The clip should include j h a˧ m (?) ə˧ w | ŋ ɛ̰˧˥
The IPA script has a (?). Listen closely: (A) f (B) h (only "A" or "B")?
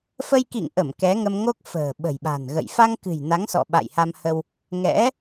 B